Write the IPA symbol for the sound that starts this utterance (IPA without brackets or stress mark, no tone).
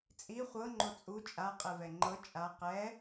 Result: t͡sʼ